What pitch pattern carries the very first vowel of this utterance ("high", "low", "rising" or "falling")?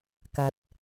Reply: rising